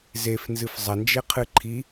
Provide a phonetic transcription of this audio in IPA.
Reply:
zefnzɨf zˤɐnd͡ʒeqʰɨ ǃʰi

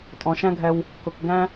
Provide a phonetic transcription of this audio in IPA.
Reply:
tʼɔ̃˨ʃæ̃˦ɡʱɛ˧w | kʊ˨k ɡæ̃˦

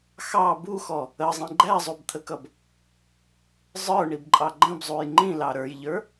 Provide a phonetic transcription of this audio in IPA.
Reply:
xɑ buxɔ | əzˤĩ ɡ͡ǃæzˤubt̪ʰəkʌb | zˤə˞ɳibǃʼɑ ɡ͡ǃə̃bzˤuj ŋ͡ǃĩlɑ ɾə˞jʎə˞

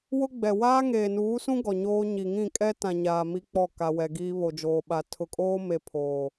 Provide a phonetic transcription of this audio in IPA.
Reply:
wʊ˦ɡ͡bɛ˨ waː˦ŋeː˨nuː˨˦sũ˦ ɡɔ˨ɲoː˦ɲi˨ ŋĩ˦˨kʼɛ˦ tã˨ɲaː˨ mi˦k͡pɔ˦˨ ka˨wɛ˨ ɡiː˦βo˨d͡ʒoː˨ɓa˨ tʰʊ˨kʼoː˦me˨ pʰoː˨

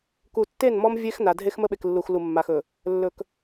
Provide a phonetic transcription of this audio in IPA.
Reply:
ku˨tːe˦˨nmɔ˦m vʲe˦x na˨ dʱe˦xmə˦ɓe˨klːu˨x lu˨mːa˨xɵ˨ | lːɵ˨k

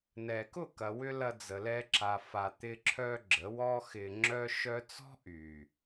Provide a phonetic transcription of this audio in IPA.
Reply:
nɛ˨ kʊ˦˨kɐ˨wʏ˧ lɐ˧d͡zə˨ lɛ˧ǁa˨fa˨ t̪ɪ˧ǁʰœ˧ ɡ͡ǁə˨˦ wɔ˦xɪ˧ŋ͡ǁœ˦ ʃœ˦ t͡sɔ̤˦ ʔy˨

